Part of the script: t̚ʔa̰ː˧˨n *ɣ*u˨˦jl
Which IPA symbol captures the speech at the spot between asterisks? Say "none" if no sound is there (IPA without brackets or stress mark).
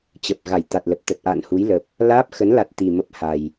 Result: h